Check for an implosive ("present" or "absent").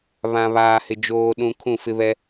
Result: present